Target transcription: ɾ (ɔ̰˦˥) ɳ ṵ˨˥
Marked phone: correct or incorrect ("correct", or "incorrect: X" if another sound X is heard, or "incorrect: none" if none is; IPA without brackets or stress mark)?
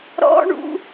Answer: correct